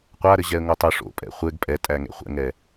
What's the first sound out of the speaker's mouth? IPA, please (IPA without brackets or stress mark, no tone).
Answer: qʷ